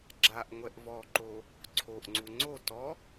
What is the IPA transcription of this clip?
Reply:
ɡ͡ǁ a ʔ ŋʷ ɛ ʔ v ɔ ǃ o | ǀʰ o ʔ ŋ͡ǀ u ŋ͡ǀ o t ɔ

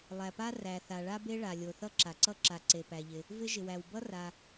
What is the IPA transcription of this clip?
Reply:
lˠ æ˩ p a˥ r æ˩ θ a˩ ɭ a˥ b e˥ ɭ a˩ lʲ o˩ θ ʌ˥ ǁ a˩ ǀ ʌ˥ ǁ a˩ ǀ e˩ p æ˩ ʎ ɪ˩ | v ɪ˥ ʒ ɪ˩ w æ˩ w b ʌ˥ r a˩

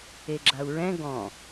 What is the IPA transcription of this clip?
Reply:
e ɡ͡ǁ a u̯ ɹ ɛ̃ ɡ ɔ̃

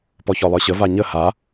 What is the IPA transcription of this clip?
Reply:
p ɔ ç ɔ lˠ ə˞ ɕ ə v a ɲ ə h a

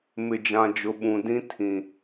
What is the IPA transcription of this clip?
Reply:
m ɪ˨ d͡ʒ ã˨ d͡ʒ ʊ˨ ɓ ũ˨ d ĩ˦ tʰ ĩ˨

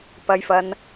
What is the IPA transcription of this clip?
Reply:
p ɐ˧ j f ɐ˧ n

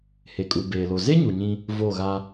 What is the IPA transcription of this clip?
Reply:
h e˨ kʼ u˨ b eː˨ l o˨ z e˦ ɲ u˨ ɲ ĩ˦ | v o˦˨ ɣ a˦

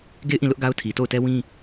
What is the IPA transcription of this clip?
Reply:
ɡ e˦˨ ɪ̯ ʔ ĩ˦˨ l ʊ˦ ʔ ɡ a˦ ʊ̯ tʰ i˨ t o˦˨ ʊ̯ t ɛ˦ w ĩ˦

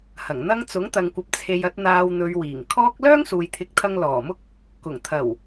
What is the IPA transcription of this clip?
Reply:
h ɐ˨˩ ŋ n̪ ɐ˥ ŋ t͡s ʊ˨˥ ŋ t̪ ɐ˨ ŋ kʷ ɐ˨ p̚ t͡sʰ e˨ j ɐ˧ t̚ n̪ aː˧ w n̪ ɵ˨˧ ɥ w iː˨˩ ŋ kʰ ɔː˥ k̚ l œː˥ ŋ s uː˨ j t̪ʰ ɪ˨˥ k̚ t̪ʰ ɐ˧ ŋ l ɔː˨˩ m ʊ˥ k̚ | k ʊ˨˩ ŋ t̪ʰ ɐ˨˩ w

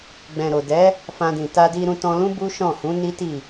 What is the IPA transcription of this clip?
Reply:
ɡ͡b ɛ̃˨ ɾ o˨ d ɛ˨˦ | f ã˧ d ĩ˨ t a˧ d i˧ ɾ ũ˧ t ɔ̃˧ l ũ˦ b u˦ ʃ ɔ̃˦˨ h ũ˨˦ n i˦ t i˦˨

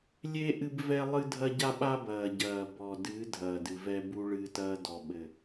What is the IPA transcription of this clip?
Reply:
lʲ e˦ ʔ ɨ˦ b v ɛ˦ lˠ ɨ˦ dʱ ɐ˦ ɟ a˦ ɓ a˦ b ɐː˨ ɟ ɐː˨ b ɔ˨ d ɨ˨˦ dʱ ɐː˨ d ɨ˨ v ɛ˦ b u˦ ɭ ɨː˦ t ɐː˦ d ɔ˨ ɓ ɘ˨

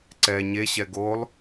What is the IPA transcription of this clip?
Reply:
ǀ ɛ ɲ e ɕ ɛ ɡ o lˠ

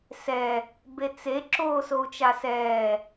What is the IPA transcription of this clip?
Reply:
s ɛ | b e t͡s e ǁ oː s o u̯ t͡ʃ a s ɛː

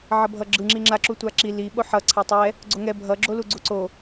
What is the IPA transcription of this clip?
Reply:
ʕ ʌ bʱ ʌ ɡ͡ǁ ɯ ŋ͡ǁ i ŋ͡ǁ a ǁ u tʷ a ǁ i l i ɓ o ħ ʌ ǀʰ a tˤ ɛ | ɡ͡ǀ o ŋ ɛ bʱ ʌ ɡ͡ǁ o l u ɡ͡ǀ u ǀ o

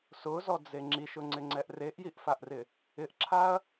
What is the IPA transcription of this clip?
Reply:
s ʊ z ɔ d͡z e ŋ͡ǁ i ʃ ʊ ŋ͡ǀ ɪ ŋ͡ǀ ɛ ʔ r e ʔ j i ʔ f a ʔ r ɪ | ɪ ʔ ǁʰ a ɐ̯

